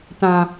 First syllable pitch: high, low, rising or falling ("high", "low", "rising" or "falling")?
high